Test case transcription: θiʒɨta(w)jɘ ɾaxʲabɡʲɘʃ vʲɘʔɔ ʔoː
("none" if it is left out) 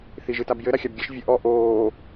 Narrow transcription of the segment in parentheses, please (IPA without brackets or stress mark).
b